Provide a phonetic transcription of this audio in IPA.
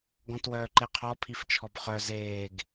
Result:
ɡ ɔ̃ t w œː ǃ e qʰ ɔ pʰ i f t͡ʃʰ ɔ b χ œ z eː ɡ

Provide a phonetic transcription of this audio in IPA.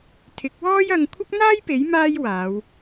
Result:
t̪ʰ ɪ˨˥ k̚ w ɔː˥ j ɐ˧ ŋ kʷʰ ɐ˥ k̚ n̪ aː˥ j p e˨˥ j m aː˥ j w aː˨˧ w

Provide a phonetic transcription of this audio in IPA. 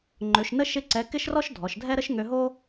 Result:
ŋ͡ǃ ø˩˧ ʃ n ə˥ ʃ ɪ˥ ǀ ɛ˧˥ k ɪ˥ ʃ r ɔ˥ ʃ dʱ ɔ˩˧ ʃ dʱ ɛ˥ ɾ ə˥ ʃ ŋ ø˧ ɦ o˥

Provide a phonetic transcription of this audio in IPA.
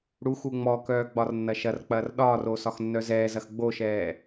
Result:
ɽ u x u ŋ͡m ɔ k œː ɡ͡b ɒ r nː ɐ ʃ ɐ r k͡p ɐː r ɗ ɒː r o s ɒ x nː œ z ɛː z ɐ x ɡ͡b o ʃ ɛː

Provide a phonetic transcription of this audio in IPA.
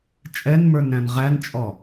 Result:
t͡ʃʼ ɛ n m ə˞ n ɾ æ̃ n ʁ æ n t͡ʃʼ ɔ

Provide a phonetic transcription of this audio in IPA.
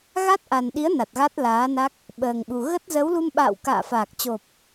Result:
ɣ a˦˥ t̚ ʔ a˨˩ n ɗ i˨˦ ə̯ n a˨˩ t̚ ɣ a˦˥ t̚ l aː˨˦ n a˦˥ k̚ | ɓ əː˨˩ ŋ ɓ u˨˩ ɣ ə˦˥ t̚ z ə˨˦ w l u˧ m ɓ a̰ː˧˨ w k a̰ː˧˨ f aː˨˩ k̚ t͡ɕ o˨˩ p̚

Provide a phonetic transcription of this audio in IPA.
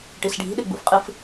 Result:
ʈ i s ɖʱ i̤ ɗ e ɡ͡b ṵ f qʼ ɨ f

